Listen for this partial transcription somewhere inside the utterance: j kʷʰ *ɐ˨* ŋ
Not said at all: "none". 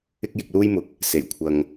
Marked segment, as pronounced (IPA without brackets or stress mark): ɐ˨